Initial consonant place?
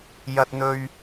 palatal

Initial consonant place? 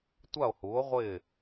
alveolar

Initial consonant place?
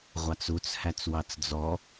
uvular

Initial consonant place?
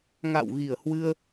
velar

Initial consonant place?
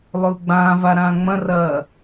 alveolar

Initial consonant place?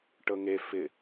retroflex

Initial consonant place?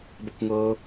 labial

